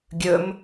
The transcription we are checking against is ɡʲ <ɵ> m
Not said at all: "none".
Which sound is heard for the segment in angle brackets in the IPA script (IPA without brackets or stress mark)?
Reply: ɵ